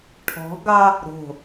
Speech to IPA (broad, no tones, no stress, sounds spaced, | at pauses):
ʈʰ ɔ̤ ɡ ɑ | ɾ o̤